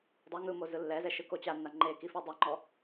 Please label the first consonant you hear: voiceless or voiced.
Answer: voiced